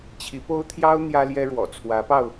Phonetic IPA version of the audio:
t͡ɕʰi˧˥po˥ʊ̯t̪ʰjɑ˥ʊ̯ n̪jä˥ljɛ˥ɻwɔ̰˨˩ t͡sʰwä˧˥pɑ˧ʊ̯

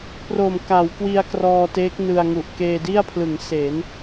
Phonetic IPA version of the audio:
pro˨˩mka˩˦wkwi˧a̯ krɔː˧teː˦˥k̚ nɯ˧a̯ŋu˨˩ʔ keː˧di˥˩a̯pʰlɯ˩˦ŋ se˩˦n

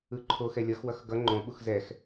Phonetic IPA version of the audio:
ɯǃʰox ɛlʲʌxwʌx ɡʌ ŋ͡ǃõɓux zɛx

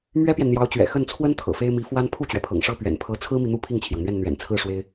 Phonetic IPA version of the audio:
mɥɛ˥pjɛ˨nn̪jɑ˧˥ʊ̯t͡ɕɥɛ̰˨˩ xə˥˩nt͡sʰwə˥n t̪ʰɤ̰˨˩fe˥ɪ̯mi˧˥fwa˥n pʰu˥˩t͡ɕɥɛ˩pʰɤ̰˨˩ŋʂɤ˥˩ pɥɛ̰˨˩npʰɤ˧˥ t͡sʰɹ̩˥mi˨n̪u˥˧ pʰi˥˩ŋt͡ɕʰjɑ˩ŋn̪ɥɛ˥˩n n̪ɥɛ̰˨˩nt͡sʰɹ̩˥˩ ʂwe˥ɪ̯

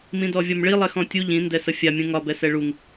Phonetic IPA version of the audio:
mĩdɔvʲɒmɭi lˠɛxɔ̃tʲu ʎĩ ndɛsəfʲa mʲũŋɒ bɛsɛɭuŋ

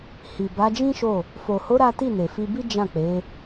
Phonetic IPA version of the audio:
hi˨ba˨˦d͡ʒĩ˦ ʃo˦˨ | fo˨ho˨˦ ɾa˦ ti˦˨ne˨fi˧bi˦ d͡ʒã˦˨k͡pe˨˦

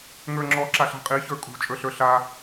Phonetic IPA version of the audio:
ŋə˞ŋ͡ǁɔ ǁaɬa̤qʼi çə˞kʼṳ t͡ʃʼə˞ɬə˞ɬa

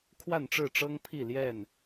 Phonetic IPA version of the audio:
kʰwa˥˨nʈ͡ʂɻ̩˥˨ʈ͡ʂɤ˦ŋpʰi˥˨ ljɛ˥˨n

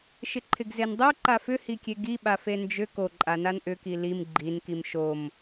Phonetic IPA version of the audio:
ʃɪǃʰɪɡzendˤo ǃafʏhikʲe ɡi ɓafend͡ʒʏ koǃʼanan ʔʏki lim ɡ͡ǃin kimʃom

